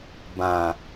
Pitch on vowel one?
low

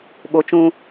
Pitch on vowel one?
high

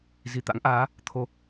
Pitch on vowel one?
low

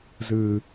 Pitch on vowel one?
low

